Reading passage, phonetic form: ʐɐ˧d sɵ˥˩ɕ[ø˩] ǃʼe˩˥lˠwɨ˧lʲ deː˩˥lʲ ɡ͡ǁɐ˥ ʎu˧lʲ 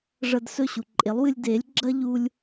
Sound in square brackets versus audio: incorrect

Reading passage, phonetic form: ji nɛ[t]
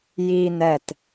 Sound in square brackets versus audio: correct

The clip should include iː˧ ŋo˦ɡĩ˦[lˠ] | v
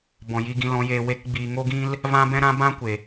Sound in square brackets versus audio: incorrect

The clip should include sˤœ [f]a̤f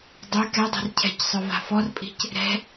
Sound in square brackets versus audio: incorrect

